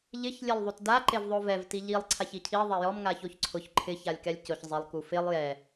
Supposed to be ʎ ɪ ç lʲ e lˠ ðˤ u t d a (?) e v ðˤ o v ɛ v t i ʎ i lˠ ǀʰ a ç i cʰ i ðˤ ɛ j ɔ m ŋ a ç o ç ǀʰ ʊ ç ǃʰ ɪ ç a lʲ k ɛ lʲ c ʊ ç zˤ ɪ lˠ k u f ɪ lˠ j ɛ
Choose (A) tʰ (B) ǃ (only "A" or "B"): B